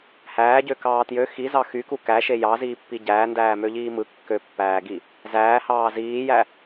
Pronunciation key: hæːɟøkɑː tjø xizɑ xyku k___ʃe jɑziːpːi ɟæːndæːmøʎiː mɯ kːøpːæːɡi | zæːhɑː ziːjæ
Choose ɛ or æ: æ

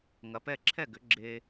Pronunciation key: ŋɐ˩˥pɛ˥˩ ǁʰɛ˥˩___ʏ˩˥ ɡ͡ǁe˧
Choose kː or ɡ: ɡ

